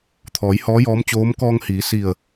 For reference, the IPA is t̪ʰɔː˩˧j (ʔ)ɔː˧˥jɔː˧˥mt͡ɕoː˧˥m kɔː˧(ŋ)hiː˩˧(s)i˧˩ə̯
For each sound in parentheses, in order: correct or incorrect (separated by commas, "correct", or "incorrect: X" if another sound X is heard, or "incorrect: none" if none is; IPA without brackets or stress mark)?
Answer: incorrect: h, correct, correct